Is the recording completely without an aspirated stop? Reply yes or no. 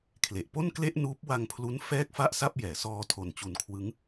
no